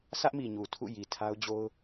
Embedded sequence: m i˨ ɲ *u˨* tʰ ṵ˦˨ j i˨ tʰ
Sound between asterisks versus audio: correct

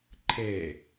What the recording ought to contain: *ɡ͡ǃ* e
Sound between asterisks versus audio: incorrect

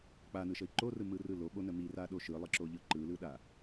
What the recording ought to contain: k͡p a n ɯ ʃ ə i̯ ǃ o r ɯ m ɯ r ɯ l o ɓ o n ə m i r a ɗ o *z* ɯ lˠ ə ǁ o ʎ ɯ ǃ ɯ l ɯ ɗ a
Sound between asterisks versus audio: incorrect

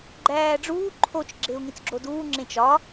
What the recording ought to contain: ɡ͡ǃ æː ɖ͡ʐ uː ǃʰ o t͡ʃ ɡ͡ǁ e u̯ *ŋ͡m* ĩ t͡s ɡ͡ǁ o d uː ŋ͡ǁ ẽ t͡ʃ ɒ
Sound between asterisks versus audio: incorrect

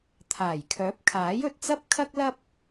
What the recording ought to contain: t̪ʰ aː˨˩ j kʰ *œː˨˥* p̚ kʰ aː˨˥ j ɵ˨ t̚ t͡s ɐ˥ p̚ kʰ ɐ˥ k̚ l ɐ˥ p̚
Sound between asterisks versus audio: correct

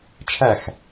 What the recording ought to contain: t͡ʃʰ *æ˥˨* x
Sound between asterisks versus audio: correct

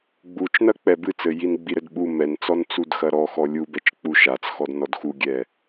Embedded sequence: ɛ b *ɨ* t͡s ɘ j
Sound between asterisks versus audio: correct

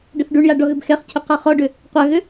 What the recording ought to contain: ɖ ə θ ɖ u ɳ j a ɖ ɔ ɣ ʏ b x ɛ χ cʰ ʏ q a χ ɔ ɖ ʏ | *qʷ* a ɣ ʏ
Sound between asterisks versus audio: correct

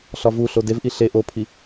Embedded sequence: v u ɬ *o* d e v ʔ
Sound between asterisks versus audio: correct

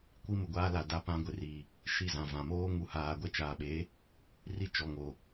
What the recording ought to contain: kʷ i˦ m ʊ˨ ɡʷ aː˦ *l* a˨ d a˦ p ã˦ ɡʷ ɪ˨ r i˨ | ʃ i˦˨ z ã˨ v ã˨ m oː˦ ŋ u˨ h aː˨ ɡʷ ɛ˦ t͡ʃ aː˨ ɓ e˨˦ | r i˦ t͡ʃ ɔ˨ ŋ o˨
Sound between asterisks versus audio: correct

